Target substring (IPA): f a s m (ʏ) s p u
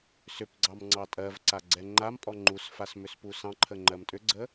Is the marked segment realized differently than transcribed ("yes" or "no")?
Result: no